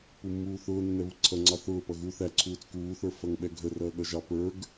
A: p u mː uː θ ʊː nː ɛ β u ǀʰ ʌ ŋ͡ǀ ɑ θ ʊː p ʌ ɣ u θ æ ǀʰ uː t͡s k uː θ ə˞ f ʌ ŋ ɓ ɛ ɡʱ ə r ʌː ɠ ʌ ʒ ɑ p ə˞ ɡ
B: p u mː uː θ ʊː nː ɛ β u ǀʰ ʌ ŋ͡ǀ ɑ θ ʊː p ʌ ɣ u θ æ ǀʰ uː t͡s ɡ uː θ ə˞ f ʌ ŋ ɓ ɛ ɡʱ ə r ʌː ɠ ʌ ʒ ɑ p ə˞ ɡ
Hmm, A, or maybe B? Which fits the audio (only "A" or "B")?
A